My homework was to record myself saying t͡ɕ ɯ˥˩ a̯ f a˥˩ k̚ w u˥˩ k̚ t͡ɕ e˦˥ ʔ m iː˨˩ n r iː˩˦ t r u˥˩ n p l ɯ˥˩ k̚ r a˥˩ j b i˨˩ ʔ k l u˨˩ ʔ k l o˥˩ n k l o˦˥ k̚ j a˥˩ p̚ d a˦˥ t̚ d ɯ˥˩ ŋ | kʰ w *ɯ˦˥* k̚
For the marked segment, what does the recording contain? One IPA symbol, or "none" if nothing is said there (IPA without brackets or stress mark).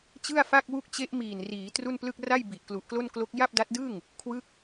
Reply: ɯ˦˥